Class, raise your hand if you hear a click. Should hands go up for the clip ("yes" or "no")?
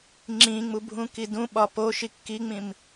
yes